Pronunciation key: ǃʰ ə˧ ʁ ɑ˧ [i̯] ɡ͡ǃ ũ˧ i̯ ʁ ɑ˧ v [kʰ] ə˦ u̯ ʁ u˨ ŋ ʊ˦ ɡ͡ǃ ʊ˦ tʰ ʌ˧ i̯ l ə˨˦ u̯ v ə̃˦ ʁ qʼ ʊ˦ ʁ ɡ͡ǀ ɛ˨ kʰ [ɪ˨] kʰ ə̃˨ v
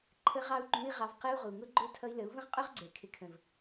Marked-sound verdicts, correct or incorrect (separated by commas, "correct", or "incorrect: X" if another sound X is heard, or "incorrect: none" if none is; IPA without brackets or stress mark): incorrect: u̯, incorrect: q, correct